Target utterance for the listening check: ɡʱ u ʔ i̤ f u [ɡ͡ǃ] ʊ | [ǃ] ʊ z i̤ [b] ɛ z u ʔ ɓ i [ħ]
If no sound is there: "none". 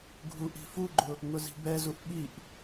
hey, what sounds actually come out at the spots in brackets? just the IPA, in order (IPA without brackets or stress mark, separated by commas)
ɡ͡ǃ, ŋ, b, ʔ